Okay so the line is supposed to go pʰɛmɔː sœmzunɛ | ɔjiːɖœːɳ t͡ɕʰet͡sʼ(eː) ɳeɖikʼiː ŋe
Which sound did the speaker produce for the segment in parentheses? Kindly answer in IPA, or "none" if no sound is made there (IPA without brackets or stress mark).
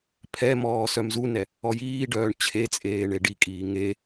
eː